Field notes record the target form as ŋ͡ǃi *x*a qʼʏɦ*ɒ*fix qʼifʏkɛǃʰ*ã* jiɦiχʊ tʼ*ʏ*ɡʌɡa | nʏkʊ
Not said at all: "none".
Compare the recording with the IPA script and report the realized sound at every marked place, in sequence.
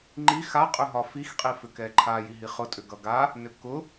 x, ɒ, a, ʏ

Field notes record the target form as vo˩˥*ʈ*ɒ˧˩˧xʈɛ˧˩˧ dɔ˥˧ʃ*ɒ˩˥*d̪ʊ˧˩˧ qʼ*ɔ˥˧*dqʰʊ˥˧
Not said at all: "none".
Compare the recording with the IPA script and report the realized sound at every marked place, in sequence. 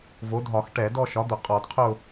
dʱ, ɒ˩˥, ɔ˧˩˧

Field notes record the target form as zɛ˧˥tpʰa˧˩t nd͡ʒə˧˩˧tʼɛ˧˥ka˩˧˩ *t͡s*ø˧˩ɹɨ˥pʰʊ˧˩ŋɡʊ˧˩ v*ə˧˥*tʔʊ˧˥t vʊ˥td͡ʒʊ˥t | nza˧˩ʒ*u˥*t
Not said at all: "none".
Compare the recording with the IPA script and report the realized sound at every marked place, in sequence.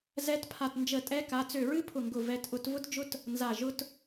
t͡s, ɛ˧˥, ʊ˥

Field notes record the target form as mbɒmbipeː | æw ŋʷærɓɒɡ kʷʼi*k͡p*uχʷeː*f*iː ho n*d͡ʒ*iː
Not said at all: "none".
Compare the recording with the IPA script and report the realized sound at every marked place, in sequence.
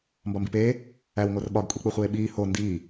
k͡p, ɓ, d

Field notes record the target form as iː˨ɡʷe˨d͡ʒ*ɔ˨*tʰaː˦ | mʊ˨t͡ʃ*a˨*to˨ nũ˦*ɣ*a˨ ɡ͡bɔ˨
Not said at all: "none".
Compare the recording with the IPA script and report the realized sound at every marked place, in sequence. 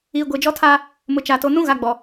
ɔ˦, a˨, ɣ

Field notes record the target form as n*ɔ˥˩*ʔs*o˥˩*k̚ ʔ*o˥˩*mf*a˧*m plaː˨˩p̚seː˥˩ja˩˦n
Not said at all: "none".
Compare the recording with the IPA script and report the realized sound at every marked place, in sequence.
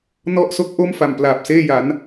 ɔ˥˩, o˥˩, o˥˩, a˨˩

